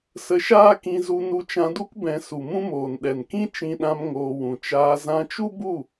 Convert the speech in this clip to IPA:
sə˧ʃaː˦kĩ˧zu˧ nu˧t͡ʃã˧du˦k bɛ̃˧ su˨mũ˦moː˨n ɗɛ˨nkĩ˦ t͡ʃĩ˧ɗã˧m ŋoː˧wũ˨ t͡ʃaː˧ zã˧t͡ʃu˦bu˦˨

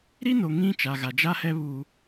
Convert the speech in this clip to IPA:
ɾi˦no˨ ŋĩ˦ t͡ʃa˨ɣa˨d͡ʒa˦hɛ˦ βu˦

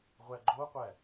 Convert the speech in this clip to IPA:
ʁʷæɡ͡ǃoqʷæ

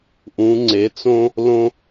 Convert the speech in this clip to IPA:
ʔũ˨˦ŋ͡ǀe˨˦t͡sõ˥ | lõ˥

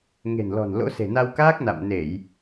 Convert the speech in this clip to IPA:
ŋe̤˨˩nlɔ̤˨˩n lo̰˧˥se̤˨˩ na˧wkaː˦˥k̚ na̰˧˨mne˧˩˨j

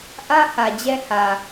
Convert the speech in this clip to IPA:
ʔä˦hä˨ d͡ʑɛ˦hä˨

